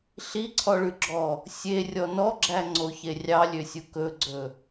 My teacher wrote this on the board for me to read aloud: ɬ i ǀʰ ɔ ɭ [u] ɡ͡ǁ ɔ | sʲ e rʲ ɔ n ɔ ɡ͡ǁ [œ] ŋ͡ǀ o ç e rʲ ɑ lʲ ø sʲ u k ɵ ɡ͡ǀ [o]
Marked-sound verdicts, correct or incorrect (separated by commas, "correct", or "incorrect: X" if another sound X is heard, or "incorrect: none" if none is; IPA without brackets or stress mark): incorrect: ʉ, incorrect: æ, incorrect: ɵ